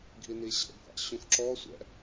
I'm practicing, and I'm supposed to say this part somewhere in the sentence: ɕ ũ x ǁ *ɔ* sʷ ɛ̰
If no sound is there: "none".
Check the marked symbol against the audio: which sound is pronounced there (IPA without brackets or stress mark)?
ɔ